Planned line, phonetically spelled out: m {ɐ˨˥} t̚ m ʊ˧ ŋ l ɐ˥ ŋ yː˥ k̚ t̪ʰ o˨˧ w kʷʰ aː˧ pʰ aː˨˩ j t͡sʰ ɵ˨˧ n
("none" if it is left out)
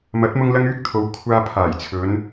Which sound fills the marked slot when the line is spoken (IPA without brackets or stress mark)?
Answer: ɐ˨˥